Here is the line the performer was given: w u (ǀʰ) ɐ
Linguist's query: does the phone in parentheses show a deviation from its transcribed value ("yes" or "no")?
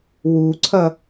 no